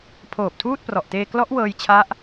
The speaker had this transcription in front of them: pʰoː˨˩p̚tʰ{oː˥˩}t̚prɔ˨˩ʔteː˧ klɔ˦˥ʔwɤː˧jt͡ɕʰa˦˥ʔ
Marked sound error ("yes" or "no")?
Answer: yes